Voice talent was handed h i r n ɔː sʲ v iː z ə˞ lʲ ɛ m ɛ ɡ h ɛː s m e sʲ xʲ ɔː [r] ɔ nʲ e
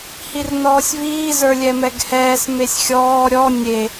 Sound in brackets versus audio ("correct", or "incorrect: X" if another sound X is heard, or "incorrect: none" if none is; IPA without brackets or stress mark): incorrect: ɾʲ